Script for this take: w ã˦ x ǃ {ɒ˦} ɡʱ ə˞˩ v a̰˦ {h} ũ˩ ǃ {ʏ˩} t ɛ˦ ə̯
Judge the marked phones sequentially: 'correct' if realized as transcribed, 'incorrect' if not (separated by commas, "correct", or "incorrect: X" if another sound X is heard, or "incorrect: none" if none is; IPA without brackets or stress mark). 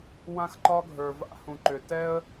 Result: correct, correct, correct